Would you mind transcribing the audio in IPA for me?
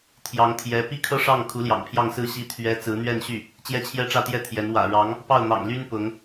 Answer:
t̪ʰ j ɑ˧˥ ŋ t̪ʰ j ɛ˧˥ p i˥ kʰ ɤ˥ ʂ ɑ˥˩ ŋ kʰ u˧˥ l j ɑ̰˨˩ ŋ pʰ j ɑ˥˧ ŋ s ɹ̩˥˩ ɕ i˥ t̪ʰ ɥ ɛ˥ t͡s ɹ̩˧˥ n̪ ɥ ɛ˥˧ n ɕ y˥˩ | t͡ɕ j ɛ˥ t͡ɕʰ j ɛ˥˧ ʈ͡ʂ ä˥˧ t̪ j ɛ˥˩ t̪ʰ j ɛ˧˥ n w ä̰˨˩ ɻ ɑ˧˥ ŋ | p ɑ˥˩ ʊ̯ n̪ ɑ̰˨˩ ŋ l y˥ n p ʊ˧˥ ŋ

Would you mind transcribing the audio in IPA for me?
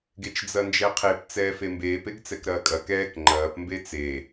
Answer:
ɡ e t͡ʃ d͡z ɐ n d͡ʒ ɛ qʰ e p t͡s ɛː f e m b eː p e ɡ t͡s ɛ k ɾ ɐː kʼ ɐ k ɛː k ŋ͡ǃ ɐː p m b e t͡s e

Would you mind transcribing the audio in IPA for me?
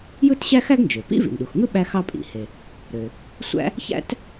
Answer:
j ɯ˥ t ɕ æ˥ x æ˥ ɡ n d͡ʒ ø˩ p ḭ˥ v ḭ˩ n ɗ u˩ x ŋ ɯ˥ ɓ æ˥ x ɑ˥ pʼ ḭ˩ h e˩ | ɾ ø˩ | sʷ æ̰˥ | ç æ̰˥ t

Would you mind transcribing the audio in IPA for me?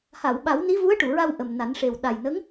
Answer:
h a˨˩˨ w ɓ a˨˩˦ w n i˧˥ v u˧˥ ə̯ ʈ u˨˩˨ ɹ a˧ w ʔ ə˨˩ m n a˨˩˦ n ʂ e˨˩ w ɗ a˨˩ j n ə˧˥ ŋ

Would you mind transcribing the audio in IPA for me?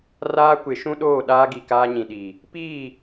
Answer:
r aː˦ kʷ ɪ˨˦ ʃ ũ˦ ɗ oː˦˨ ɗ aː˦ ɡ i˨ k aː˦ ɲ ĩ˨ ɗ i˨ | p iː˦˨

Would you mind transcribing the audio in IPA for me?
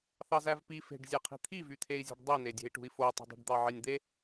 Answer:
θ ɑ z æ v p i f e̤ ɖ zʲ æ qʰ i̤ t̪ʰ i v y t̪ʰ e i̯ zʲ e̤ ɖ dˤ i n e dʲ e̤ i̯ ʈ ṳ i̯ f o i̯ tˤ e̤ dˤ i̤ ɖ d̪ ɑ ʕ e nʲ d̪ e

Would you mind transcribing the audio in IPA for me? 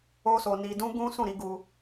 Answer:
o˦ s o˧ n i˧ d ũ˦ ɡ ũ˦ s ũ˦˨ ɾ i˨˦ ɡ u˧

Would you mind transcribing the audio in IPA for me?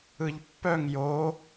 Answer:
ɯ ʎ pː œ ŋ j o

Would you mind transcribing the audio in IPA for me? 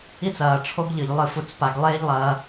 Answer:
i˦ t͡s ɐː˨ ʈ͡ʂʰ o˦ ɡ ʎ ɨ˨ ʎ lˠ ɨ˦˨ f u˧ t͡s p a˧ ɡ lˠ eː˦ ʎ lˠ ɐː˧

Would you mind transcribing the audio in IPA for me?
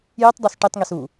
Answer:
j i tˤ dˤ o s ʈ i tˤ ŋ i s u

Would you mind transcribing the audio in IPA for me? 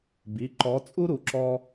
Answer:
b i˩˧˩ ǃ ɔː˨˥ t͡sʼ u˥ ɾ u˨˥ ǁ ɔː˥

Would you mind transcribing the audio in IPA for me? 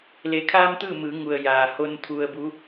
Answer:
l e˩ kʰ aː˧ m t̪ ɯː˥˨ m ɯː˩˧ ŋ u˩ ə̯ j aː˩ h o˧ n t̪ʰ u˧ ə̯ b u˧˥

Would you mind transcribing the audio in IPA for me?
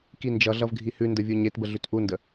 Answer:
k i n d͡ʒ ʌ ɮ ʌ v ɡʱ i h ʉ n d ə vʲ u ɲ e t b ə ɮ ʉ t ʔ u n d ə

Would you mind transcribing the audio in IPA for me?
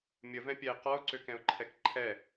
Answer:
mʲ ə v ɛ̃ pʲ ɛ ɪ̯ q ɔ ʊ̯ ǀ ø k ɛ̃ ʊ̯ ǃʰ ɛ k ǃʰ ɛ

